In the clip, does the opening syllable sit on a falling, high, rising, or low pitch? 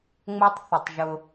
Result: high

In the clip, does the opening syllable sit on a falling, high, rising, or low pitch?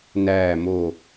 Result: falling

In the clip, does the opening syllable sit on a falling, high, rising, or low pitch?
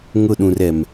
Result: falling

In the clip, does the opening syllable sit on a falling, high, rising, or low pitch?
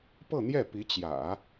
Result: falling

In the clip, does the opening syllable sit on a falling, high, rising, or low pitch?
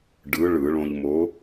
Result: rising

